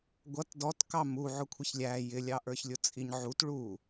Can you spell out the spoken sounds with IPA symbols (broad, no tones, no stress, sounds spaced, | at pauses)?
ɡʷ ʌ t d ɔ t k ɑ m u ʕ ʊ kʷʰ ɪ ç lʲ æ j ɪ lʲ ɑ ʔ ə˞ ç lʲ ʊ t͡sʼ i ɲ ʕ u t ɭ u